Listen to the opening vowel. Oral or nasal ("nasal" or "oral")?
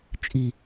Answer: oral